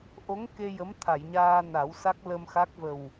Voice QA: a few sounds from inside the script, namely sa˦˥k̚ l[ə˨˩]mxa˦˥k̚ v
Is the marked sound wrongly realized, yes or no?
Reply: yes